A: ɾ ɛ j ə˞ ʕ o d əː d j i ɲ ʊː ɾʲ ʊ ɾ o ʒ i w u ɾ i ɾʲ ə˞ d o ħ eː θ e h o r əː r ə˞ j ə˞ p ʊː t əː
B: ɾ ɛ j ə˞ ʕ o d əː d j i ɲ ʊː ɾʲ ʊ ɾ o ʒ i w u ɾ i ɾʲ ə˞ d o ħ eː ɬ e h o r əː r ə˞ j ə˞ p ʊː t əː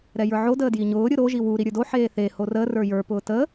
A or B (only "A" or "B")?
A